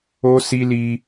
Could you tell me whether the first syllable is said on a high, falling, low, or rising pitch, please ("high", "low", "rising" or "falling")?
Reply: high